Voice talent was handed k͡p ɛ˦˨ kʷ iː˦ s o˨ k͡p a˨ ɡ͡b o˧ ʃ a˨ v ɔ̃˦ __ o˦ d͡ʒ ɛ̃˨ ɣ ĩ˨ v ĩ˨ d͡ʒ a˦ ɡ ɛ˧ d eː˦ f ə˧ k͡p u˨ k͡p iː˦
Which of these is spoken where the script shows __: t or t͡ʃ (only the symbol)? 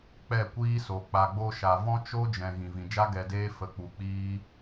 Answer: t͡ʃ